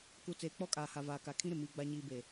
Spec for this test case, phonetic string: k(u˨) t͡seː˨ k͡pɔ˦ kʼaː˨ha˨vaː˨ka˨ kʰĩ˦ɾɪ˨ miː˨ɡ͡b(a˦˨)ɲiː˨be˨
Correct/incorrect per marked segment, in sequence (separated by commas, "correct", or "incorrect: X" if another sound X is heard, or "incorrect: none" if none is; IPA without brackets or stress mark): correct, incorrect: a˨